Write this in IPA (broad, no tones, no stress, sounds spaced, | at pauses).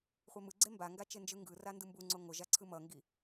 χʷ e m ɯ ɡ͡ǀ e m b a ŋ ɡ a t͡ʃ e n d͡ʒ ɯ ŋ ɡ ɯ r a n d ɯ m b u ŋ͡ǀ o ŋ o ʒ a ǀʰ ɯ m ʌ ŋ ɡ i